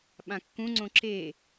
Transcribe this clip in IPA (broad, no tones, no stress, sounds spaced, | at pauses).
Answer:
ɓ ã kː ũ ŋ͡ǀ õ ǁ e